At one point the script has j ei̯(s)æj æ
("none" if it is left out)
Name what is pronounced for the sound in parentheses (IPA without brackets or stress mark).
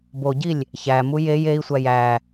sʷ